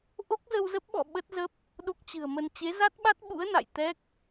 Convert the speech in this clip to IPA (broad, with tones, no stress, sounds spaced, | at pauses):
ʔ o˦˥ k̚ z ə˧ w z ə˦˥ p̚ ɓ ɔ̰˧˨ ɓ ə˦˥ t̚ z ə˦˥ p̚ | ɗ o˦˥ k̚ t͡ɕ ɨ̤˨˩ ə̯ m ə˧ n t͡ɕ e˨˦ z a˦˥ t̚ ɓ a˦˥ t̚ ɓ ṵ˧˥ ə̯ n a̰˧˨ j t̪ ɛ˦˥ k̚